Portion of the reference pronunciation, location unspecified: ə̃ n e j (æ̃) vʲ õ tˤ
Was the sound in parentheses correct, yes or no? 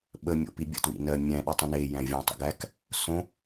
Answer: yes